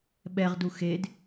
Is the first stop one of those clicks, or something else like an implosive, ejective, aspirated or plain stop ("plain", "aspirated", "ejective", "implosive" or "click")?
implosive